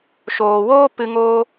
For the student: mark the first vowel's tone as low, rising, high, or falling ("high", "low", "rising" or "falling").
low